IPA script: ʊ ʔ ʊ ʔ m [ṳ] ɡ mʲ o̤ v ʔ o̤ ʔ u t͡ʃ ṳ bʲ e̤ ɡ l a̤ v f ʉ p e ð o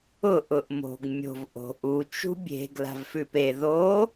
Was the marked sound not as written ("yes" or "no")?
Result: yes